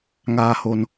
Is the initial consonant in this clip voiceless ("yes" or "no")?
no